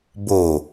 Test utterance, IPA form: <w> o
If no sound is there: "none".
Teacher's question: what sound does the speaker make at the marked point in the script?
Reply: b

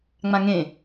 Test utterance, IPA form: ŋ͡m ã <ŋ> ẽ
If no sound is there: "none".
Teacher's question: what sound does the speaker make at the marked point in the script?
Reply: ŋ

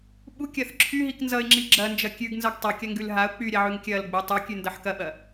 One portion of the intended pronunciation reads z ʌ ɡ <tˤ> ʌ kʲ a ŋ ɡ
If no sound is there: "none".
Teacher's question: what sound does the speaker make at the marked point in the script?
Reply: tˤ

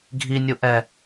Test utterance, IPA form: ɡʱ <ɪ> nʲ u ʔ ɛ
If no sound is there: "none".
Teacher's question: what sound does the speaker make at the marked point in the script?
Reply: i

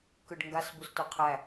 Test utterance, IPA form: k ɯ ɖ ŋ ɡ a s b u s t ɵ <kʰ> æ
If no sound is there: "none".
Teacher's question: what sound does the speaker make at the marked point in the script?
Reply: qʰ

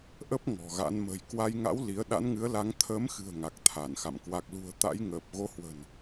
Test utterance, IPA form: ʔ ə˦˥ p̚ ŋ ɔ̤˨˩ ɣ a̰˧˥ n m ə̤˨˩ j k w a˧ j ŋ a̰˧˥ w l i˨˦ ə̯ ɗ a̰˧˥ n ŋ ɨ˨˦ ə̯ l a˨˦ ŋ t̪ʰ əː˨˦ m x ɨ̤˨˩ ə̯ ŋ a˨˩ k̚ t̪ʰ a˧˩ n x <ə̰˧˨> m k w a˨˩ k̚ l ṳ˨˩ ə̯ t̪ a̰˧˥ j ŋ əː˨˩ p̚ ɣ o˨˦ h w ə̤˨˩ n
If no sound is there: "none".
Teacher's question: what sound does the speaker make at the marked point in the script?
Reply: a̰˧˨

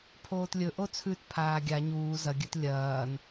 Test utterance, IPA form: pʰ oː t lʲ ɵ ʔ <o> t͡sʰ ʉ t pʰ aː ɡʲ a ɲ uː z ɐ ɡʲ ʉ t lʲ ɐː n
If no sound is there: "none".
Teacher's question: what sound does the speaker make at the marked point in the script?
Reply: o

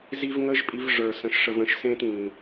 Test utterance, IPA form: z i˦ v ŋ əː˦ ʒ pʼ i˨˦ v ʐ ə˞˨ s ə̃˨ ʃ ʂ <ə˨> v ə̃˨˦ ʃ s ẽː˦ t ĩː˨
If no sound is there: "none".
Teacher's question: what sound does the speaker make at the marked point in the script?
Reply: ə˨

